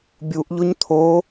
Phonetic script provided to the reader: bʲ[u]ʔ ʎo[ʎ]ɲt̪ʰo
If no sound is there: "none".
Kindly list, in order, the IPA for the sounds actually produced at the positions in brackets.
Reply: u, none

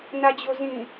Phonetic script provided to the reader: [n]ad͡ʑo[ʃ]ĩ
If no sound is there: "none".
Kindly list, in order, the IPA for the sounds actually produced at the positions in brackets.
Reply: n, z

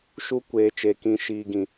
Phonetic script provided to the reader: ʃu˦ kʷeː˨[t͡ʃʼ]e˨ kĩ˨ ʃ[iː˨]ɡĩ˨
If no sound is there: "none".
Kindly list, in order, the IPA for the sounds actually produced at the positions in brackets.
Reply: t͡ʃ, iː˨

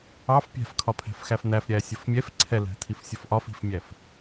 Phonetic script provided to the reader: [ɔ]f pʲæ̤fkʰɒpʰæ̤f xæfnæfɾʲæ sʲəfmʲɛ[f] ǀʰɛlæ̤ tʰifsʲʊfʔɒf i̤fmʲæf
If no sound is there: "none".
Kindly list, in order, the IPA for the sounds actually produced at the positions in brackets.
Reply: ɑ, f

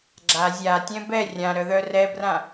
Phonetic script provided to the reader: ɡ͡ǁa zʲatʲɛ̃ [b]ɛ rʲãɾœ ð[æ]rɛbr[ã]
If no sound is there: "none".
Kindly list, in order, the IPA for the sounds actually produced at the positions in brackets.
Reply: b, œ, ã

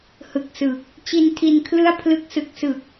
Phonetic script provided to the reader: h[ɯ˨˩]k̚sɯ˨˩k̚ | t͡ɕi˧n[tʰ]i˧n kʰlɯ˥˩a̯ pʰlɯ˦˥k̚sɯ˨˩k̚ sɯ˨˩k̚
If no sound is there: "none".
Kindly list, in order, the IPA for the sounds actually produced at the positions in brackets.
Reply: ɯ˨˩, tʰ

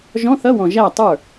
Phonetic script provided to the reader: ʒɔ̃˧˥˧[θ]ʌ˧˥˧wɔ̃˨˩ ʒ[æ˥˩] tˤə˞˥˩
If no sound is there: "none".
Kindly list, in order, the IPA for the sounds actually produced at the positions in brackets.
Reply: θ, æ˥˩

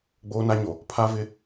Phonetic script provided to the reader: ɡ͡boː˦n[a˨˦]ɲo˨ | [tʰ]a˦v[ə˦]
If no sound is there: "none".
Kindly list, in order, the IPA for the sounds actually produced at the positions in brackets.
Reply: a˦, pʰ, ɪ˦

